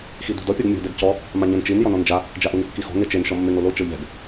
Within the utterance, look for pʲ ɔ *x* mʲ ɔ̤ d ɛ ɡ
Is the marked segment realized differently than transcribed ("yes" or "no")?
yes